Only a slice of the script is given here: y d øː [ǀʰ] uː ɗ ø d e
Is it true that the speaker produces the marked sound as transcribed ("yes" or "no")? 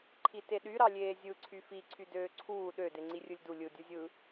yes